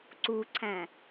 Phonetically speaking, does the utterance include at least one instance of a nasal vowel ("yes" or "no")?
yes